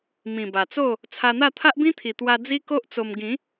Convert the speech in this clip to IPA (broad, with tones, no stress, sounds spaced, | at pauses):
m ĩ˨˩ b a˨˩ t͡s o˥˧ | t͡sʰ a˧ n̪ a˥˧ t̪ʰ a˦ ʔ b ĩ˦ t̪ʰ i˨˩ t̪ w a˧ d͡z i˦ k o˦ ʔ t͡s o˧ m ɡ ĩ˨˦